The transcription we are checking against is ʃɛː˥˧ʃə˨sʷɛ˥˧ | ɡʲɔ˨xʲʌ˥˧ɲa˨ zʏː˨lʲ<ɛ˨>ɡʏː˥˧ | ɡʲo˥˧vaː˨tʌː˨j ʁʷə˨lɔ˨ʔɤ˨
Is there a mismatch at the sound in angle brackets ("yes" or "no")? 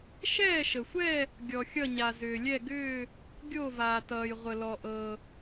yes